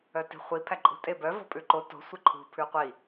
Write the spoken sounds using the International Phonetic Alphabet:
œ t i̤ χʷ i pʰ æ ǃʼ ṳ tʼ e b œ v ɔ̤ pʼ ʉ ǃ o t o̤ sʷ e ǃʰ ṳ pʰ ʉ qʷ i

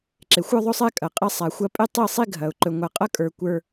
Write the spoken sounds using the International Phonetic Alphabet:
ǁ e˨ xʷ ə˞˦ ðˤ ɵ˦ sˤ ɛ˦ kʼ ɐ˨ qʼ ɛ˦ sˤ a˨ xʷ ɐ˦ pʼ e˦ tˤ i˦˨ sˤ i˦ ɡʱ ɐ˨ ʊ̯ ǃ ɵ˨ ŋʷ a˨ qʼ ɐ˦ kʼ ə˞˨ kʷ ə˞˦

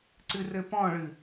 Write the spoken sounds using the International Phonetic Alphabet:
ǀ ɨ r ɘ p ɔ̃ ɭ ɨ

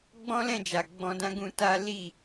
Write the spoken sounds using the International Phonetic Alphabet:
ɡ͡b ɔ̃˦ l ɛ̃˦˨ d͡ʒ a˨ ɡ͡b ɔ̃˧ d ã˦ ɡ ũ˧ t a˦ l i˦˨

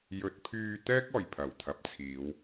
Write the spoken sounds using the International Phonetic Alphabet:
j ɵ˨˥ t̚ pʰ yː˧ t̪ ɛː˥ k̚ ɔː˨˩ j pʰ ɐ˨˩ w t̪ʰ ɐ˨ p̚ t͡sʰ iː˨˧ w

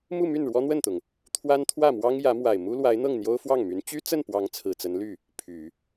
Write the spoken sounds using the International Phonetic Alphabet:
m u˥˧ m y˥˩ n ɻ w ɔ˥ n̪ w ə˥˩ n t̪ ʊ˩ ŋ | t̪ʰ w a˥ n t̪ʰ w ä˥˩ m w ɑ˥ ŋ j ä˧˥ m w a˨˩ ɪ̯ m u˥ l w a˧˥ ɪ̯ n̪ ɤ˥˩ ŋ n̪ j o˥ ʊ̯ f w ɑ˥˩ ŋ m y˧˥ n t͡ɕ y˥ t͡s ə˥˩ n p w ɑ˧˥ ŋ t͡sʰ ɹ̩˨˩ t͡s ə˧˥ n l y˥˩ | pʰ y˨˩˦

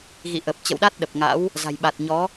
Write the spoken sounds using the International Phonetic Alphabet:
ɣ ḭ˧˨ ʔ ə˨˩ p̚ t͡ɕ ə̰˧˨ w ɗ a˦˥ t̚ ɗ ə˨˩ p̚ ŋ a̰˧˥ w | z a̤˨˩ j ɓ a˨˩ t̚ ɲ ɔ˨˦

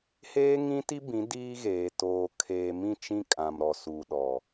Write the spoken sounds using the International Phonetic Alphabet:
h eː˦ ŋ ĩ˦ t i˦ b ĩ˨˦ d iː˦ ɣ eː˨ t oː˨ kʰ eː˨ m ĩ˦˨ t͡ʃ ĩ˦ kʼ ã˨ m ɾ ɔ˨ s u˨ ɗ ɔ˨

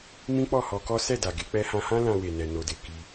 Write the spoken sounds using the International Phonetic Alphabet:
m ĩ˦ k͡p ɔ˦˨ h ɔ˧ k ɔ˦ s ɛ˦˨ d a˨ ɡ e˧ k͡p ɛ˧ h ã˧ h ã˦ l ã˧ w e˨ n ɛ˨ n o˨ d e˨ k i˧

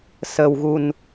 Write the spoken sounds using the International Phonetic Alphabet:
s ə˧ w ɣ u˧ n

